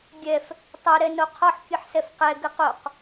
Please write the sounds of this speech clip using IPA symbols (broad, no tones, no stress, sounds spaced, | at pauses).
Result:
ɡʲ ɛ f | tˤ o ɾ ɛ n o qʰ ɔ ħ kʲ ɨ ħ s ɛ f q ɛ ɡ ɨ q o q